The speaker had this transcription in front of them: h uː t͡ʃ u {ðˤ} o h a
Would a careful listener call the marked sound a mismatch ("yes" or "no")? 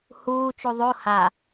no